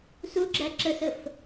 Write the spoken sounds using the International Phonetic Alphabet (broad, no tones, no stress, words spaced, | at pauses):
suɡ͡ǁæ ǁəsəf